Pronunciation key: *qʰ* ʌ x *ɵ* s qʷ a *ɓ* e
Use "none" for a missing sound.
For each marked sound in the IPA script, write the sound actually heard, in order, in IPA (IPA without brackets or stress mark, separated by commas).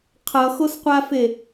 qʰ, o, f